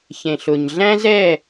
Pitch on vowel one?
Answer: low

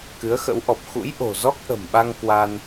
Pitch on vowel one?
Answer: rising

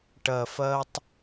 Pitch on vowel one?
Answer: low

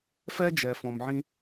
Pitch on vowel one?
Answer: high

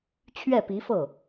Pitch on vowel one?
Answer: falling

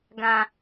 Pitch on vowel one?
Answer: low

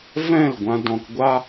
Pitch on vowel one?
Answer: falling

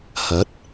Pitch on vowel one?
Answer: rising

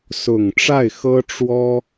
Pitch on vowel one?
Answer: low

